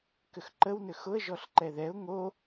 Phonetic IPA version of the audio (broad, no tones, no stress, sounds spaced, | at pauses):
k ʏ x ǃ ə w n ʏ x ʊ ə̯ ʒ ɔ ɬ ǃ ɛ ð ɛ ʊ̯ ŋ o